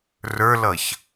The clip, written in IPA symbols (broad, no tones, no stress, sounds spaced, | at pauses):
r ə˞ l ʌ ç